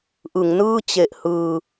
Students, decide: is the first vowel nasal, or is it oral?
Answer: oral